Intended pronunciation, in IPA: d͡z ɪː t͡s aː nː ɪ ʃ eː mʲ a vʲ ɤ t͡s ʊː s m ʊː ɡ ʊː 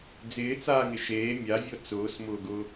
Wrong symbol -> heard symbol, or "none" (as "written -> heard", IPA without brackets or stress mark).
nː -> ŋ